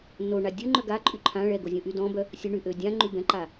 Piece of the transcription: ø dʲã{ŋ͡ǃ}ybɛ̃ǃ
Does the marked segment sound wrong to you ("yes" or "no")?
no